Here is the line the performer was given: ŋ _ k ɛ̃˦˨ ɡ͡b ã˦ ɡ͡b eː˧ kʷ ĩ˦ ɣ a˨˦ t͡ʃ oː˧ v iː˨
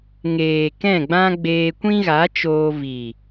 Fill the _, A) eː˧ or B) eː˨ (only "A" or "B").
B